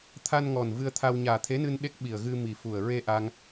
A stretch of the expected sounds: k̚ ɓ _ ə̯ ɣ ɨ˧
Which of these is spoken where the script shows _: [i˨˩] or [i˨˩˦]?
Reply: i˨˩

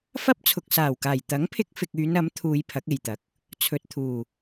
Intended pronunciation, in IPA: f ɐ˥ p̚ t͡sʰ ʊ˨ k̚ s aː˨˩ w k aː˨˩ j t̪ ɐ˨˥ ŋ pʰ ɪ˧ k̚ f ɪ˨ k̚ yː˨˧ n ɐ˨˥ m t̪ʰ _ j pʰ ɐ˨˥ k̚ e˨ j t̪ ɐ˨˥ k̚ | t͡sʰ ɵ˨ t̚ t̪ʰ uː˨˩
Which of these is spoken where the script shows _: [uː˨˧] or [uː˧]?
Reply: uː˨˧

